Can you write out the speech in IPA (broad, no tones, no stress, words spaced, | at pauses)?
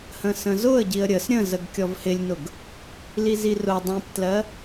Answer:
hə̃sə̃zʊə̯ɟiə̯ ɾʲəs ɾʲə̃zəɡ kʲɔvhɪlʲnʊɡ | lizirʊ dˤĩptlɜ